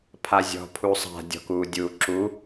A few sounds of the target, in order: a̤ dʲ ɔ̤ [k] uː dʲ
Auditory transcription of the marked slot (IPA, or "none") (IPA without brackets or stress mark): k